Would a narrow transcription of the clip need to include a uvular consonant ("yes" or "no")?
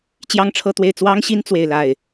no